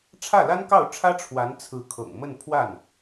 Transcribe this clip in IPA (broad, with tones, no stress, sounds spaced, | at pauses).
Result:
ʈ͡ʂʰ ä˥˩ l a˥ n k ɑ˥˩ ʊ̯ ʈ͡ʂʰ ä˥ ʈ͡ʂʰ w a˧˥ n t͡sʰ ɹ̩˧˥ kʰ ɤ̰˨˩ ŋ m ə˥˧ n pʰ w a˥˩ n